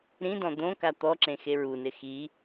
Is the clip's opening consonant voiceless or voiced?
voiced